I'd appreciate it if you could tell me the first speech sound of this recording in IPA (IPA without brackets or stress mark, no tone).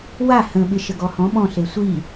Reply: w